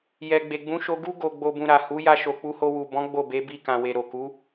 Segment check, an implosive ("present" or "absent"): absent